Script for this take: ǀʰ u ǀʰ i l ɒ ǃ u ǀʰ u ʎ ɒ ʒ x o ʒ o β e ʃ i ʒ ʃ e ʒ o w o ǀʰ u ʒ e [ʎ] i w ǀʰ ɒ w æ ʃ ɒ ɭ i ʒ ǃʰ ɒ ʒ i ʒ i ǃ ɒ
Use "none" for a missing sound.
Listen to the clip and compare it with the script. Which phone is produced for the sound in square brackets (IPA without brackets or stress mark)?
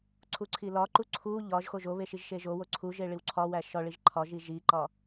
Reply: ɭ